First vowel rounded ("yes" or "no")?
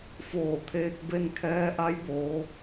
yes